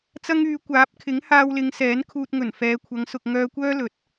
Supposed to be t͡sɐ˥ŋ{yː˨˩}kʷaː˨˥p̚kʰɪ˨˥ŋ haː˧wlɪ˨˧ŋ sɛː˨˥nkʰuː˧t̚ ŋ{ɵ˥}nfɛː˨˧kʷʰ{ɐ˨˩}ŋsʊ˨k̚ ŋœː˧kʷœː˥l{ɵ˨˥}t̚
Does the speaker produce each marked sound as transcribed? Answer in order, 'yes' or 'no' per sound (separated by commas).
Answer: no, no, no, yes